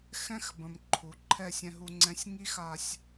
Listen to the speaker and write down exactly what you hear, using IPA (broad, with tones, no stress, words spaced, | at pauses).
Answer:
xɛ̃˦xbə̃˨m ǃʰu˨ ǃʰɛ˦˨sʲɛ̃˧ɦu˧ŋ͡ǀɛ̃˧sʲ ŋi˦xa˧sʲ